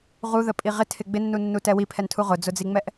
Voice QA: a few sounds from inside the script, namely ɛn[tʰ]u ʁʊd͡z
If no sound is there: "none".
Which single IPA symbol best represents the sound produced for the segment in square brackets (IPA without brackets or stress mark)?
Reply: tʰ